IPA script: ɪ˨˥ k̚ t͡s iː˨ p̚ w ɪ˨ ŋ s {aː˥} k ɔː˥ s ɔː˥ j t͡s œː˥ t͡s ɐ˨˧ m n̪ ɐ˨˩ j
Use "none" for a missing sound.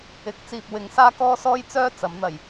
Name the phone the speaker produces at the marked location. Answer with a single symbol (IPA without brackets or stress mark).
aː˥